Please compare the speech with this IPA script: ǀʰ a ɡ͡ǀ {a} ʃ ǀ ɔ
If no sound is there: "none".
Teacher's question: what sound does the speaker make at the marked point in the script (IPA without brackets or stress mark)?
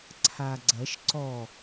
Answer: ɐ